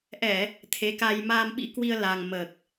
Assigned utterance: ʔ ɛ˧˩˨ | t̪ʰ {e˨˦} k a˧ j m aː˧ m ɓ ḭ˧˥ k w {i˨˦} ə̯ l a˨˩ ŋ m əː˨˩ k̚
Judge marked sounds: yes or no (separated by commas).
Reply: yes, no